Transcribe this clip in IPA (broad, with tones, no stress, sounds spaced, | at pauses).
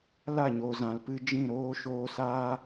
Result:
l a˦˨ ɲ o˨ z ã˨ l p ɨ˧ d͡ʒ ĩ˦˨ ɾ oː˦ ʃ oː˧ s aː˦